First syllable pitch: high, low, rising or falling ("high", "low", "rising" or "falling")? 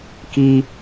high